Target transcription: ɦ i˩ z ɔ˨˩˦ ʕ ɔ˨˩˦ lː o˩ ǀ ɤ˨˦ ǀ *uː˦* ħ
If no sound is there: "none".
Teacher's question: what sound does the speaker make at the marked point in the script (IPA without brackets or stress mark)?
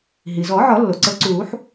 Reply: uː˨˩˦